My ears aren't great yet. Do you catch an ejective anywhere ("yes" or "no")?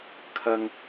no